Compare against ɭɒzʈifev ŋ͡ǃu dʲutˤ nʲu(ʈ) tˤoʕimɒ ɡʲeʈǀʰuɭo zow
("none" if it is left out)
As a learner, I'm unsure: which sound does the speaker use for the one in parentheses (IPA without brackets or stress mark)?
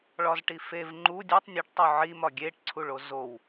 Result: ʈ